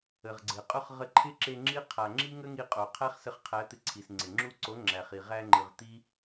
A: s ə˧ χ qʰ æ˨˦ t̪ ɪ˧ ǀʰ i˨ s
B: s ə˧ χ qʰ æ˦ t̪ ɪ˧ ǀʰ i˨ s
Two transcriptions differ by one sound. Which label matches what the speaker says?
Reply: A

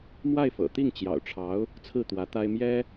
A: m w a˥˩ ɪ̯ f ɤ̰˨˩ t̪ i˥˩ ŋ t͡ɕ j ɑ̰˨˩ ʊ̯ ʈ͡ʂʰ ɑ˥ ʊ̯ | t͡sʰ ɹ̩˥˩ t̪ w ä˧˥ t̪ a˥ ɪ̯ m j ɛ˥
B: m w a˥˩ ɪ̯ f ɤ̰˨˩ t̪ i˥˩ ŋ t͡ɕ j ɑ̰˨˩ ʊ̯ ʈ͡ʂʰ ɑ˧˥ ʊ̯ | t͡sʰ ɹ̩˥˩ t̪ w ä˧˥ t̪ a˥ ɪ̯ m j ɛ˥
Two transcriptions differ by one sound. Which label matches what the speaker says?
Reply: B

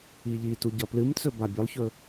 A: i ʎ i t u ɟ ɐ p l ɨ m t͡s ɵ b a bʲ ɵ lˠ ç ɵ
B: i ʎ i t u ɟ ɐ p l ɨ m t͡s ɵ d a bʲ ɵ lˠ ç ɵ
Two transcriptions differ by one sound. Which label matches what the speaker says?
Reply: A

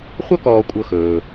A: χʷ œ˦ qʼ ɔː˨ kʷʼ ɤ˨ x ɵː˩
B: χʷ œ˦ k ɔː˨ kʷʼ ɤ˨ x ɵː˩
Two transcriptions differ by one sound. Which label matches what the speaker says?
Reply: B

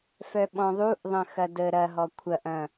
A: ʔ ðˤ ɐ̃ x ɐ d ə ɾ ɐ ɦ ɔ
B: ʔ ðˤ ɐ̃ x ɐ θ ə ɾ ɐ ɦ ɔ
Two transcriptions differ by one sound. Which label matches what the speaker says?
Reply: A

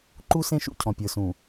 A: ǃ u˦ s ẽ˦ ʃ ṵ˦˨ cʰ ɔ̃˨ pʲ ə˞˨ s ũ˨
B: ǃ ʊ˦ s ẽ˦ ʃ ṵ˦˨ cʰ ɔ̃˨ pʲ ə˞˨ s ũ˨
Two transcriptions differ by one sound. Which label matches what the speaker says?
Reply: A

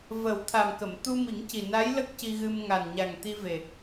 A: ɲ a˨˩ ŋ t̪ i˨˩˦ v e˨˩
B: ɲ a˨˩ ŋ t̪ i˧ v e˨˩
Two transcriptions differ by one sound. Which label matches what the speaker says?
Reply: B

